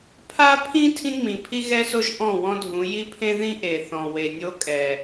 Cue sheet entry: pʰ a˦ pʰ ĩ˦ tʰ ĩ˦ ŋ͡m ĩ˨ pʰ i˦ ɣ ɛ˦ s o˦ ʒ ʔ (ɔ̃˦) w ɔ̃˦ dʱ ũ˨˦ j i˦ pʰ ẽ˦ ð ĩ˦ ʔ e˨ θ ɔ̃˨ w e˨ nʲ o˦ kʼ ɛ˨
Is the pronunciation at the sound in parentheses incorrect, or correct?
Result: incorrect